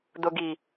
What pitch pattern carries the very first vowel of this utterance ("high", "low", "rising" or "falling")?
low